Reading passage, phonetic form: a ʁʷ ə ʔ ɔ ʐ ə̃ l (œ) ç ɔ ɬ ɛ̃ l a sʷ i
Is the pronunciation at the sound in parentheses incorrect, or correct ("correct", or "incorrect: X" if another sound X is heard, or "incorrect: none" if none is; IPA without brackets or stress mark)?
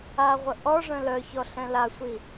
correct